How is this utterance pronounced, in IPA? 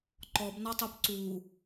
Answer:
ǃ ɔ b n ɔ tˤ o p ǀ u

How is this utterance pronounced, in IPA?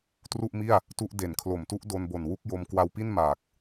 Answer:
t r u˥˩ ʔ m i˥˩ a̯ | t u˥˩ ʔ d e˨˩ n kʰ l o˨˩ m t u˦˥ ʔ d o˧ n b o˨˩ n w u˦˥ k̚ j o˧ m k w a˧ w p i˥˩ n m aː˨˩ k̚

